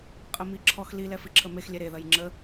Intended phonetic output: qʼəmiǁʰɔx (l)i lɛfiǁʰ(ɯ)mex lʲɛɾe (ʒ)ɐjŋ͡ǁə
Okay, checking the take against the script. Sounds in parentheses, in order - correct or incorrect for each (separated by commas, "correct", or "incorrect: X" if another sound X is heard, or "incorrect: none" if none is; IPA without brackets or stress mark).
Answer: correct, incorrect: ə, incorrect: ð